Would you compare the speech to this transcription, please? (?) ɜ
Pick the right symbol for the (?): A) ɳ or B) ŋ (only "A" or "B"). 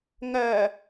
B